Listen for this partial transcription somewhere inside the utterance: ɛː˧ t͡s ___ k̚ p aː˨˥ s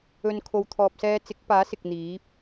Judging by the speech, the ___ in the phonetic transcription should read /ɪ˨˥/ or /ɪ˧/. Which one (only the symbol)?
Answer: ɪ˨˥